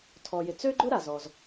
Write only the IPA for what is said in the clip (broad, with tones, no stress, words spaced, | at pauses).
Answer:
tʰɔ˩jɪ˩ t͡sø˥ɡ͡ǃʊ˥ ɾa˩zɔ˩z